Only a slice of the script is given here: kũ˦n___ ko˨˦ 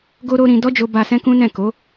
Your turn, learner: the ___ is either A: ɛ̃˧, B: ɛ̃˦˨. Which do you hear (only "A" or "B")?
B